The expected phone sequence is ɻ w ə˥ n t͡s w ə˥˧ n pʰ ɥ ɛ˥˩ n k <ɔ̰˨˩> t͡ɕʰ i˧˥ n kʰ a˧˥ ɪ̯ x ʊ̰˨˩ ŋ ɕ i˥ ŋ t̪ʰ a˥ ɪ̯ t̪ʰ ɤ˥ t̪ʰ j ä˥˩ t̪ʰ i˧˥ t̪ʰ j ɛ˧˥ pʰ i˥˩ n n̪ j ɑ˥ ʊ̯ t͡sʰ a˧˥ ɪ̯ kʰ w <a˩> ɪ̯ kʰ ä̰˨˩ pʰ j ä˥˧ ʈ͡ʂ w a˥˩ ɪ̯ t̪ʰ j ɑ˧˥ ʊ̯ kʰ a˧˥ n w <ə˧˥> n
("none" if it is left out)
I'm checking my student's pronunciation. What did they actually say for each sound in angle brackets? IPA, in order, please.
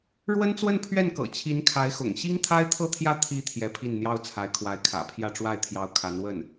ɤ̰˨˩, a˧˥, ə˥˩

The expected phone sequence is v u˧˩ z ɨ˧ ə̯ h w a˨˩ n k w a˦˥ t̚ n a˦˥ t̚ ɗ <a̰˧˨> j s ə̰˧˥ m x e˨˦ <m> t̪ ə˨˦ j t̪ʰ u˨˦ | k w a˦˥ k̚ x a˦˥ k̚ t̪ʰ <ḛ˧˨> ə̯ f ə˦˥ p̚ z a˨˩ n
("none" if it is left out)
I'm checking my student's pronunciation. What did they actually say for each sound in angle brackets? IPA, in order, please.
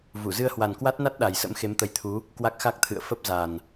a˨˩, m, ɨ̰˧˨

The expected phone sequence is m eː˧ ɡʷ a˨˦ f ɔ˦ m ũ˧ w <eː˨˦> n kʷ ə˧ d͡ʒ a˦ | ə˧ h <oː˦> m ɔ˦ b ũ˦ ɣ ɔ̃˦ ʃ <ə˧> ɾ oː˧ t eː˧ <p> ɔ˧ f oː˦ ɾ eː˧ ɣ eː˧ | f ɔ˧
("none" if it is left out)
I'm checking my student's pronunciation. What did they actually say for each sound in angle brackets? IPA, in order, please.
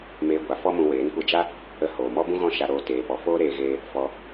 eː˨˦, oː˨, a˧, p

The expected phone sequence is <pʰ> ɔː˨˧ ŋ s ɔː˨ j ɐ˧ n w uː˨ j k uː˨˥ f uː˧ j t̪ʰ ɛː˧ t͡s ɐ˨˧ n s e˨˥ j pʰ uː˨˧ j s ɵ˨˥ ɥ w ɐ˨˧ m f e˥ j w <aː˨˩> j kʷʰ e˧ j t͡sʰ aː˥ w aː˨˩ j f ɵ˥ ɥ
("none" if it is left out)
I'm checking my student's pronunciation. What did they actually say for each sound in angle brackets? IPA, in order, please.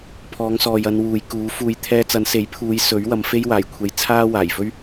pʰ, aː˨˩

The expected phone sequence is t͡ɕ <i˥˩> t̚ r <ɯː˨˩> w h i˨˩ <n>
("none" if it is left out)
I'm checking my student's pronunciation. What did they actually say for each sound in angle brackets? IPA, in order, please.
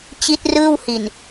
i˦˥, ɯː˥˩, n

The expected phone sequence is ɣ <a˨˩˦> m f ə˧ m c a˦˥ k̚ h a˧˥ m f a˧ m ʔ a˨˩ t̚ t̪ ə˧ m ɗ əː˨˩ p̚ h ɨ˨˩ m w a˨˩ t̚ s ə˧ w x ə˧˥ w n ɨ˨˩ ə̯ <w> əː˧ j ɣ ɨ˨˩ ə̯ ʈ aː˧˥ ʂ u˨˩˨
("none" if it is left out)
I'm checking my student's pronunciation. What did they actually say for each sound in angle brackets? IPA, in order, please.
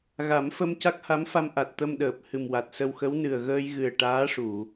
a˨˩˦, ɣ

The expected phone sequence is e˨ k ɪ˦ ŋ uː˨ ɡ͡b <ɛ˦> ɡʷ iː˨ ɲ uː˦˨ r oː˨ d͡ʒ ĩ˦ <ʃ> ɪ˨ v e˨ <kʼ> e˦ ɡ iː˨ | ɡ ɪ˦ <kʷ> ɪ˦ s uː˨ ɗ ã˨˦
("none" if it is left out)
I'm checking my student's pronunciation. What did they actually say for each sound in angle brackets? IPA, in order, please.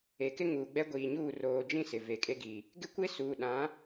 ɛ˦, s, kʼ, kʷ

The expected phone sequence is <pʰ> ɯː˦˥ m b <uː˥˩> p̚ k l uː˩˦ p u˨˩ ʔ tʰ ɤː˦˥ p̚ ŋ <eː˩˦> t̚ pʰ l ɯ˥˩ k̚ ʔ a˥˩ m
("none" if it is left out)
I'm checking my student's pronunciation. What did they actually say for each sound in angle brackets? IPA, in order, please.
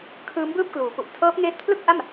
kʰ, ɯː˥˩, eː˦˥

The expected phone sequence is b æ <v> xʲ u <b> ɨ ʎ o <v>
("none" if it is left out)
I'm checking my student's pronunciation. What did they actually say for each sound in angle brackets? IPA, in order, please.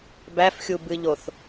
f, b, θ

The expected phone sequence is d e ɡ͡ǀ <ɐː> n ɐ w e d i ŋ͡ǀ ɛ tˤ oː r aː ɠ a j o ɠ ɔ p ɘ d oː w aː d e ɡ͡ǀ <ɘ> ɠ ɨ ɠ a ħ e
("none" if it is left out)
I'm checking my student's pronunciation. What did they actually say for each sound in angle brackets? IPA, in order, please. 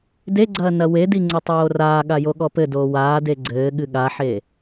ɐː, ɘː

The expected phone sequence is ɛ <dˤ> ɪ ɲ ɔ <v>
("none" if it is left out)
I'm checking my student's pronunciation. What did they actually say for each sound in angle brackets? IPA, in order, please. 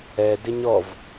d, v

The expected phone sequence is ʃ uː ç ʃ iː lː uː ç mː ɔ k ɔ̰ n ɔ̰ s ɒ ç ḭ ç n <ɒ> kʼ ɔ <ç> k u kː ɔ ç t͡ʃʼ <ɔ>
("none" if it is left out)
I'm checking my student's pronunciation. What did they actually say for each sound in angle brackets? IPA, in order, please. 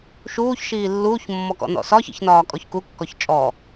ɒː, ç, ɔ

